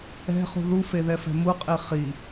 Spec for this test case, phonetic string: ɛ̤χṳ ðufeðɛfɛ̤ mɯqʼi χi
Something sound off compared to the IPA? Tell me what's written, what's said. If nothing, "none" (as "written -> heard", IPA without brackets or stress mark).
ɯ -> u